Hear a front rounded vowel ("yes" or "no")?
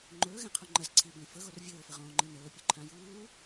no